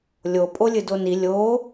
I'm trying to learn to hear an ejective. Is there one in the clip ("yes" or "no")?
yes